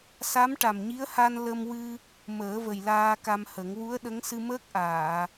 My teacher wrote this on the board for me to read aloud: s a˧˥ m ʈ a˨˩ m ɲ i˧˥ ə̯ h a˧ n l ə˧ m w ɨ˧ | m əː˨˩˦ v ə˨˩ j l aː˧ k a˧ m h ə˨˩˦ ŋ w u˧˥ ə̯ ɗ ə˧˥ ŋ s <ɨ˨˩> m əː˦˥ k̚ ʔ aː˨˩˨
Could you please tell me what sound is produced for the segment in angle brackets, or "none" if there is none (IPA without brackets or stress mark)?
ɨ˧